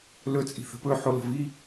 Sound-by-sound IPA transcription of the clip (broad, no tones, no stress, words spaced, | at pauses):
lɵt͡sʼi̤θə̤ pɵħo lə̤vi